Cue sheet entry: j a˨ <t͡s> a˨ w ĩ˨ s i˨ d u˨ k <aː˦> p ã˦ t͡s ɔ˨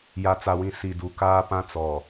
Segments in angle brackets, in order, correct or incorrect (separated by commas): correct, correct